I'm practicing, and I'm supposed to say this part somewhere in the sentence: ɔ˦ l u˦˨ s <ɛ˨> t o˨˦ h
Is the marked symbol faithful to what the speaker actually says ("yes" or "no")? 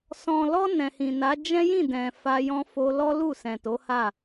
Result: no